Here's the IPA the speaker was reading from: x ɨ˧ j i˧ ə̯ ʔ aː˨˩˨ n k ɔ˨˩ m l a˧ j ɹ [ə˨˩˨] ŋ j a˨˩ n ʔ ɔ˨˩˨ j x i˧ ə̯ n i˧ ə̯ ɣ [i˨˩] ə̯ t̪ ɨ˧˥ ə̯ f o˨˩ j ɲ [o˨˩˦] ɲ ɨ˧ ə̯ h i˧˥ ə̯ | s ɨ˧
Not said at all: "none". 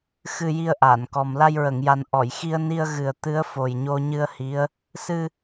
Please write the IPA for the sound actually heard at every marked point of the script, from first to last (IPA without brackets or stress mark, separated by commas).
ə˨˩˨, ɨ˨˩, o˧